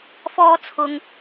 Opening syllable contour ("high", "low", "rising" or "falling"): high